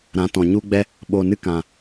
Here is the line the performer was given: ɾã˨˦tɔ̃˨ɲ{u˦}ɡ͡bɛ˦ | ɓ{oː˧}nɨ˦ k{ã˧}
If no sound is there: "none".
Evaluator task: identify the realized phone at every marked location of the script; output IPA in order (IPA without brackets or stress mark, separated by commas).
u˦, oː˧, ã˨